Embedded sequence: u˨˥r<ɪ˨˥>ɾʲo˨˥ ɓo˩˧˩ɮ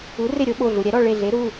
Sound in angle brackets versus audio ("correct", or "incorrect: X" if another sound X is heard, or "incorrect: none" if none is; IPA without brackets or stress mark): incorrect: ɪ˦˨